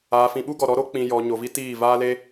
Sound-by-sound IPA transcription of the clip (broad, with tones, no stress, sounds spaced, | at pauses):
aː˨ f ĩ˨ ɓ u˦ ɡ ɔ˨ ɾ ɔ˨˦ ɾ o˦ k͡p ĩ˨ j ɔ˨ ɲ o˨ v i˦ t iː˦˨ v aː˦ l e˦